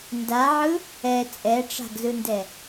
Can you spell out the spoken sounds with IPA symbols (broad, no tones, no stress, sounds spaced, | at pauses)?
n d a ʕ ɯ | ɛ t͡sʼ ɛ ʈ͡ʂ a̤ ɡ z ɯ n d ɛ